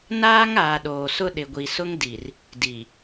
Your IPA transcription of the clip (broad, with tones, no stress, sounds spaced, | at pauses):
n aː˦ ŋ aː˨ ɗ oː˨ s ʊ˦ ɗ ɪ˨ ɡʷ i˨ s ʊ˦ ŋ d i˨ r | d i˨